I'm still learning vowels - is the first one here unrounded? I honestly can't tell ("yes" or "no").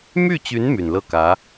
no